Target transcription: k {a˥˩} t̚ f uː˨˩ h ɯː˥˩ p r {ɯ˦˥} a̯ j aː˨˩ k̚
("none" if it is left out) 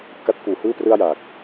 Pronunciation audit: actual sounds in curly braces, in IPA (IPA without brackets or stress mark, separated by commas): a˦˥, ɯ˥˩